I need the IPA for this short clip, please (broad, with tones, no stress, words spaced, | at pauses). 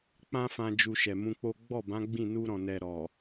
k͡pã˦fã˧ d͡ʒu˧ʃɛ˨mũ˧k͡po˦ ɡ͡bɔ˦˨bã˨˦ ɡ͡bĩ˦˨nu˧ɾɔ̃˨ nɛ˨ ɾɔ˨